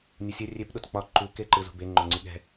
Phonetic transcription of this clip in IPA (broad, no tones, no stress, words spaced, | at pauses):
nʲɯsʲɘ rʲep ɗotk͡pɒ ǃu keǃɯzṳbe ŋ͡ǃoŋ͡ǀiɠɛ̤